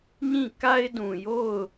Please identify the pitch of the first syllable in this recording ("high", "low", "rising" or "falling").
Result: falling